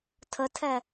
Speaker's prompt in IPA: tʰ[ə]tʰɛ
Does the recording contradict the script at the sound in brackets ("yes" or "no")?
no